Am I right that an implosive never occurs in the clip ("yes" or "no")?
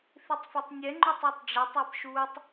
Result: yes